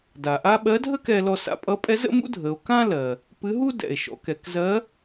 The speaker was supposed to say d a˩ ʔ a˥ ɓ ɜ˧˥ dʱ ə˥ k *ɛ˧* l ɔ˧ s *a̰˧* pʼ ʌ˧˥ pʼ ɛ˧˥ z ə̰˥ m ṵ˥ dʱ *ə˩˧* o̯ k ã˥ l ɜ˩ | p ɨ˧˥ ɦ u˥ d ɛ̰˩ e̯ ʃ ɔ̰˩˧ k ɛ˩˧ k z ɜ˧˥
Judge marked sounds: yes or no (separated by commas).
yes, yes, yes